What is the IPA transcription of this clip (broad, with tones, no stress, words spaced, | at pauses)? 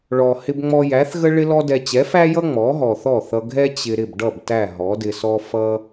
ɭɔ˩ hɪ˧bŋ͡mɔ˧ jæ˩˥θɣə˥ ɭɪ˥lɔ˥dɛ˧ t͡ɕɛ˩˥fæ˥jʌ˥ ŋ͡mɔ˩˥ɦɔ˩θɔ˥˩θʌ˧ ɡʱɛ˥ t͡ɕɪ˧ ɾɪ˥˩bɖʌ˥˩b tæ˥˩ɦɔ˩˥dɪ˧sɔ˥ fʌ˥